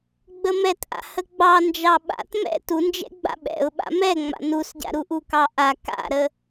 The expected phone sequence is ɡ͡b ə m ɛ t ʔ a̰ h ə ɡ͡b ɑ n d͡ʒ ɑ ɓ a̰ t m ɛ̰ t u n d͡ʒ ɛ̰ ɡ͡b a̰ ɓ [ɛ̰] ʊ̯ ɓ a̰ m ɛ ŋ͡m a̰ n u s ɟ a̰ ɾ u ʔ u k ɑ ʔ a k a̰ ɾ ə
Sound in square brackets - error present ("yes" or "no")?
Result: no